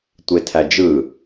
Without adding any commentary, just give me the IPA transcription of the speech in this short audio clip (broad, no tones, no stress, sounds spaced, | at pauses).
tʷ e tʰ æ d͡ʒ ɯ